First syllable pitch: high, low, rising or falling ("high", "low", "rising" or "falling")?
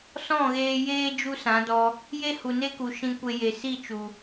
falling